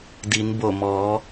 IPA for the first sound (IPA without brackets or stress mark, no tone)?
d